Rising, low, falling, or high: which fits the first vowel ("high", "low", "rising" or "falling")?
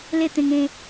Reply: falling